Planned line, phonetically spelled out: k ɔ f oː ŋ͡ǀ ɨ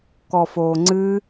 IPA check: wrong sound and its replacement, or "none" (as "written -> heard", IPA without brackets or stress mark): none